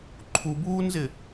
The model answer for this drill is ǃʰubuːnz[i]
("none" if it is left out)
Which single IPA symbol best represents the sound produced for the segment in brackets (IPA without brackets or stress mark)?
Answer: ɪ